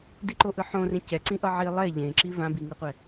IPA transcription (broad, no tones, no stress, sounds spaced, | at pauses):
d i ǃ o ʔ ɯ ħ õ r ẽ c ɛ ǀ ĩ ʔ ʌ ʕ i lˠ ɛ ʎ ẽ ǁ i v ã b i ŋ ɯ qʷ ɛ